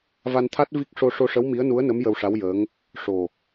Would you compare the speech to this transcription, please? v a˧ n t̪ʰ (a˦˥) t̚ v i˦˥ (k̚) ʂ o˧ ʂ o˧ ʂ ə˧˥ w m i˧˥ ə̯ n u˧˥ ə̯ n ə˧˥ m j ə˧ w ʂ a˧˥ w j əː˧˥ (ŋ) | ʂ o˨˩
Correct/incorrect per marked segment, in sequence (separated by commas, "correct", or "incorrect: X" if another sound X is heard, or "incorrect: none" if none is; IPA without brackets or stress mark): correct, correct, correct